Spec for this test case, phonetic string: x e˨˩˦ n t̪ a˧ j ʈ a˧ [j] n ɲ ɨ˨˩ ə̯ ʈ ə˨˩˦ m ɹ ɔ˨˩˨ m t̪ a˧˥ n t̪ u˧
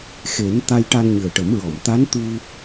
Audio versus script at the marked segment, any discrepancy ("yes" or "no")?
yes